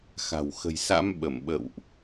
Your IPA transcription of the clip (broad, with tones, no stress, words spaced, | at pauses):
xa̤˨˩w xə̤˨˩jsa̰˧˥m ɓə˧˩mɓə̰˧˨wʔ